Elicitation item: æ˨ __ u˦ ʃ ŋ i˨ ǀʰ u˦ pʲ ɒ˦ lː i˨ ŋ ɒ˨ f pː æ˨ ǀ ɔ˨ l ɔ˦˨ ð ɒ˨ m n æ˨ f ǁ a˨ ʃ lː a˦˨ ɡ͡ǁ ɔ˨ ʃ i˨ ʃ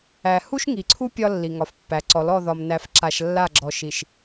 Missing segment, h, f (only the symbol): h